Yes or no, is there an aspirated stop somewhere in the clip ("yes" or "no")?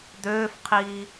yes